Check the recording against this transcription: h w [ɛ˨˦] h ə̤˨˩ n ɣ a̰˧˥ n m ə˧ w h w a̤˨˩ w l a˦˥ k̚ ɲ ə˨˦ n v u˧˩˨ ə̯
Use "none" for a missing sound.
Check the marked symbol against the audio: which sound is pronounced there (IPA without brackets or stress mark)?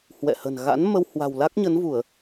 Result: ɛ̰˧˨